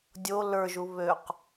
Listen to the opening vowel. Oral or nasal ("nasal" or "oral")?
oral